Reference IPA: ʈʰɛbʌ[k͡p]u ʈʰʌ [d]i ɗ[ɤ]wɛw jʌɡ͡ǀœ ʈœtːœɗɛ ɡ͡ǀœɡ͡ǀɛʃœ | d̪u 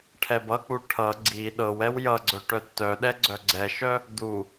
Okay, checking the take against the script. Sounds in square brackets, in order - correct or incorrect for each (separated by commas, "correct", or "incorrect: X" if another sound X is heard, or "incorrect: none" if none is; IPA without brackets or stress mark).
correct, incorrect: ɡ͡ǀ, correct